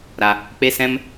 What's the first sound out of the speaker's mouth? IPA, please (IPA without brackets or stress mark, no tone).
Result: ɾ